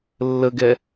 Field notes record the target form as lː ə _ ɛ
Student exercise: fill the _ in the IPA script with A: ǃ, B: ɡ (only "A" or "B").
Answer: B